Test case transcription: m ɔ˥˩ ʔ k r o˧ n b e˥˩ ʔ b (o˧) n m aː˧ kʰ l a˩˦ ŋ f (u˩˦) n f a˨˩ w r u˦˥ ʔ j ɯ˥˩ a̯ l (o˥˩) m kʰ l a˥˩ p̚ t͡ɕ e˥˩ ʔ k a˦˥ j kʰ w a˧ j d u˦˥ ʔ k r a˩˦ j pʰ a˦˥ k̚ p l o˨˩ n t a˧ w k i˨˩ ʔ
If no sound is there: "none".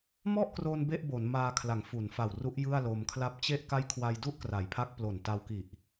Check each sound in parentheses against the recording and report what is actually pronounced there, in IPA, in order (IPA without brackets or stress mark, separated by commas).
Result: o˩˦, u˩˦, o˧